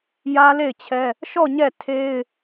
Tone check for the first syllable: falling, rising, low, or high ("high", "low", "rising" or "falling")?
high